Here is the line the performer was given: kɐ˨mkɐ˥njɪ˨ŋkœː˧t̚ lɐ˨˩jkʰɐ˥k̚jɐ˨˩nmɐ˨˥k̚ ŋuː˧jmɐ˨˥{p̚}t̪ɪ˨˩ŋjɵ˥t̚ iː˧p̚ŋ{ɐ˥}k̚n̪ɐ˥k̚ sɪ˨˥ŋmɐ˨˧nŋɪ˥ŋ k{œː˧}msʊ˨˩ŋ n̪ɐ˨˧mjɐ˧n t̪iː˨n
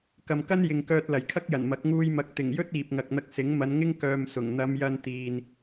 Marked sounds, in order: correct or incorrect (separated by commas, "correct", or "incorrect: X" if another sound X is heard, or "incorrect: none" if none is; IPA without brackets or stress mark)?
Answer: incorrect: k̚, incorrect: ɐ˧, correct